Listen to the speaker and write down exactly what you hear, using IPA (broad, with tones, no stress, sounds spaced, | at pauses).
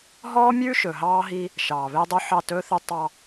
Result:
ɦ ɔː˦ mʲ ʉː˦ ʃ ɵ˨ ɦ ɑː˦ ɦ i˦ | ʃ ɑː˨ β e˦ dˤ u˦ ħ ɑ˦˨ t ɵː˦ θ ʉ˦ tˤ ɑ˦